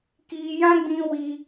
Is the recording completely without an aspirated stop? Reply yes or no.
yes